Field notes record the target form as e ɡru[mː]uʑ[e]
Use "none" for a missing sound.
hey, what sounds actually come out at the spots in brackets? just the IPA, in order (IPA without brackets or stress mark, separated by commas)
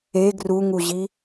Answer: ŋ, i